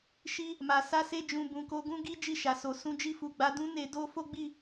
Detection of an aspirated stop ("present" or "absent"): absent